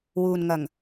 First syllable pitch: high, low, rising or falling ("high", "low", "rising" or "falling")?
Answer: low